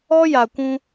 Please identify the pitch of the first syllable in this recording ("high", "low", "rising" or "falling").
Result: high